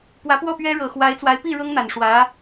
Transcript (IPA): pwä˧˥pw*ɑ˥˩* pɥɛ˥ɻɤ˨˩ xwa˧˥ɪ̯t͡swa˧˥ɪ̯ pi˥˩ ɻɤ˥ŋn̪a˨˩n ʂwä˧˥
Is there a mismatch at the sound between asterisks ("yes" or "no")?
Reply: yes